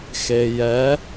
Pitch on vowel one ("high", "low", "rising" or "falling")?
low